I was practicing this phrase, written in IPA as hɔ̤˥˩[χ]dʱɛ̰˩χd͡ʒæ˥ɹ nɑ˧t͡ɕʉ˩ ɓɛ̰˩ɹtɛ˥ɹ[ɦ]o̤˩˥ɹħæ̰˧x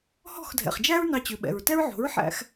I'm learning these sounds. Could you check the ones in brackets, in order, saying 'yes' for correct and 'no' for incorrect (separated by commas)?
no, no